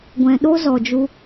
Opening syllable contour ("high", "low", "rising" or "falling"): low